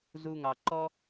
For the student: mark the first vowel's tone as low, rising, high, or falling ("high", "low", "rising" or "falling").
low